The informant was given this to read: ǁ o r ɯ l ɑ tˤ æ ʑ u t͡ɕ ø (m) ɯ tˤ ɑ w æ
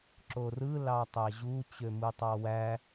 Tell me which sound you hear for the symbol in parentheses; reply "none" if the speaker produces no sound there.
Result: m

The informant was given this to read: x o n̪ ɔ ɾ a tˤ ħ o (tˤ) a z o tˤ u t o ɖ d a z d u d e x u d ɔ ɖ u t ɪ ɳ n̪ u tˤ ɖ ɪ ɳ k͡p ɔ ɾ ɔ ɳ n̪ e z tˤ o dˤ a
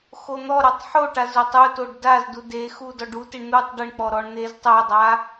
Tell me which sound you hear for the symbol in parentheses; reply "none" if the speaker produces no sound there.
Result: ʈ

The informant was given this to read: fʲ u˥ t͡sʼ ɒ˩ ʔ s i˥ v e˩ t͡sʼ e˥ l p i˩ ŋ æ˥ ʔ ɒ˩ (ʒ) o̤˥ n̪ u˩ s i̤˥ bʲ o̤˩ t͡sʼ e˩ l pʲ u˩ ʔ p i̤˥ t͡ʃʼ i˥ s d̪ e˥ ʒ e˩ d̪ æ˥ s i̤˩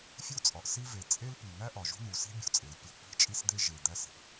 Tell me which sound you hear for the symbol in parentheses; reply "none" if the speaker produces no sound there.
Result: ʒ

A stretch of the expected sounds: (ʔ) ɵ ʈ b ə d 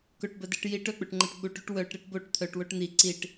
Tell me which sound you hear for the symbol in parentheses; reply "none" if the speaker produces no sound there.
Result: k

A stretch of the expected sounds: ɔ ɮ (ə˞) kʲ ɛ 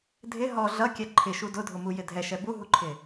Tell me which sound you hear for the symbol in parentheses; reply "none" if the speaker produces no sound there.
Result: ʌ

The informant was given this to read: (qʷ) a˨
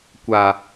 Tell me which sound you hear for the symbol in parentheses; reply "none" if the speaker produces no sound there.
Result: kʷ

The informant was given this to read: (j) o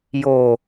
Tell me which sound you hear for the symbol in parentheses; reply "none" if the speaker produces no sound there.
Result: j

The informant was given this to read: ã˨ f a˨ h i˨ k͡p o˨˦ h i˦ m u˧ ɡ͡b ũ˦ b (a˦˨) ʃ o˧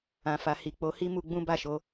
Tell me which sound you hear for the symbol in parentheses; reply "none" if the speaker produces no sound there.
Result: a˦˨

